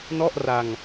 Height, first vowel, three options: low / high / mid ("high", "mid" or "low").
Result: mid